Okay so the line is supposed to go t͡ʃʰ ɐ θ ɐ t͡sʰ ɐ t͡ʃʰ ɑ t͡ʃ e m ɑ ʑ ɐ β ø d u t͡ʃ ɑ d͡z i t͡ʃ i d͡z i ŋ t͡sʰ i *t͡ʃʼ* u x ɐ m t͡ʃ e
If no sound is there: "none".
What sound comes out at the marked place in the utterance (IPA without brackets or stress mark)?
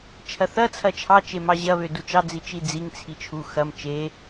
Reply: t͡ʃʰ